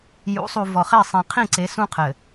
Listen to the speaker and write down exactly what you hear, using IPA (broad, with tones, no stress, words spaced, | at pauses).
jṵ˨˦sˤu˨ vɔ˨χe˦˨ sˤẽ˨qʰĩ˦˨ǀe˨˦ sũ˦qʰɘ˨